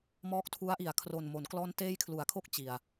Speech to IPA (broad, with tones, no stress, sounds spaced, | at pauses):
m ɔː˦˥ k̚ tʰ u˦˥ a̯ ʔ i˨˩ a̯ kʰ r o˨˩ n m o˩˦ n k l ɔː˦˥ n t eː˦˥ j kʰ l u˩˦ a̯ kʰ o˦˥ k̚ t͡ɕ i˨˩ a̯